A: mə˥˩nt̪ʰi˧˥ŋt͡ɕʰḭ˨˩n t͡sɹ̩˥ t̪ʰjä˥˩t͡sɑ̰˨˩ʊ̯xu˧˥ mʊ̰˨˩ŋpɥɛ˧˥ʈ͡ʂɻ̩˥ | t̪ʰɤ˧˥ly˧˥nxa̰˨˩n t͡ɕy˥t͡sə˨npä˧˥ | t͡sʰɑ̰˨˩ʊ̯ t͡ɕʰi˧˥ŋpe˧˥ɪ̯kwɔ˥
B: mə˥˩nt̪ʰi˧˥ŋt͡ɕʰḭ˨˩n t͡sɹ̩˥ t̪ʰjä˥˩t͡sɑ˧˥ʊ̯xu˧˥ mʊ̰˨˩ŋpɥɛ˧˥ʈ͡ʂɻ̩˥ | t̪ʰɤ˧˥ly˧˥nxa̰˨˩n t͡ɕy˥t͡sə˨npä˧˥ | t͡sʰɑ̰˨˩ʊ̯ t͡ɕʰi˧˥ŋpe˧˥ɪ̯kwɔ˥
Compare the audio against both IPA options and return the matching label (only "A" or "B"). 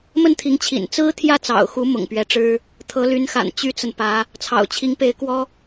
A